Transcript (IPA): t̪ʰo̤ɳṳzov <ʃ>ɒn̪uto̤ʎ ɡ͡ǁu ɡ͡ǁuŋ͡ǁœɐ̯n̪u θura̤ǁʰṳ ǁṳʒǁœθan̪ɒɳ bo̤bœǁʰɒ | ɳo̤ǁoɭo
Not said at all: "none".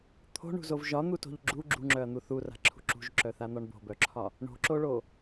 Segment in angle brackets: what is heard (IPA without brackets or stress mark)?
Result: ʒ